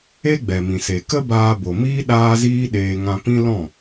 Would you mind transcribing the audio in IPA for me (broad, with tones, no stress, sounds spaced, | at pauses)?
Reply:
e˦ ɡ͡b ɛ˨ m ĩ˨ s e˨ k ə˦ b aː˧ b o˨ m iː˦ ɗ aː˦ z iː˦ ɗ eː˧ ŋ ã˧ p ĩ˦ l ɔ̃˦˨